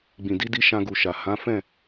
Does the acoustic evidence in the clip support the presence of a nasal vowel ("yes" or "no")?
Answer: yes